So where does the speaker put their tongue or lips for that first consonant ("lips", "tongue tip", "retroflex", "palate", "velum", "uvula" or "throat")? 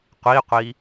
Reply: uvula